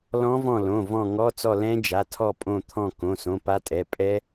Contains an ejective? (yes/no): yes